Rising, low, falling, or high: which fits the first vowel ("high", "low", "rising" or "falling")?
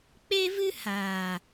high